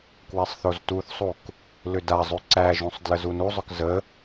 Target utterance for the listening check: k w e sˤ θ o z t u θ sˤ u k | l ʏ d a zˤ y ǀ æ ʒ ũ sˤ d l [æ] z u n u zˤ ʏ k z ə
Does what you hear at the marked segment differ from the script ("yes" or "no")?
yes